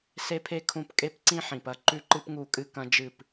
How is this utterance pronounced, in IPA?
s e˦ pʰ e˦ kʰ ũ˦˨ p kʼ e˦ p ǀ ĩ˦ ħ ĩ˨ p ɐ˦ ǃ ʉ˦ ǃ ɨ˦ p ŋ u˦˨ kʼ ɨ˦ k ɐ̃˦ d͡ʒ ɨ˦˨ p

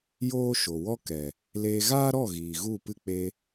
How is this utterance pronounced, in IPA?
j oː˦ ʃ o˨ w ɔ˦ k ɛ˨ | l eː˧ ɣ aː˦ ɾ ɔ˦˨ ɣ iː˨ ɣ u˦˨ p ɨ˦ k͡p e˧

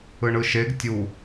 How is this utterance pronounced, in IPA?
ɯ ɳ ɯ ʃ e ɡ tʲ u

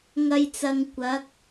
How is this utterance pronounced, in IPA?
ŋ ɐ˧ j t͡s ɐ˨ ŋ kʷ ɐ˨˥ k̚

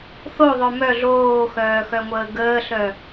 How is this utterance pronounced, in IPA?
θ o ðˤ œ m œ ɮ oː x œː x œ ŋʷ əː ɡ əː ɬ œ

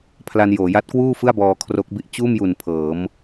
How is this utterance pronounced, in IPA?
pʰ l a˧ n j oː˩˦ j a˦˥ t̚ k w uː˥˩ f ɯ˥˩ a̯ b ɔː˧ kʰ r o˦˥ k̚ b i˦˥ ʔ t͡ɕ uː˥˩ m j u˨˩ n pʰ ɤː˩˦ m

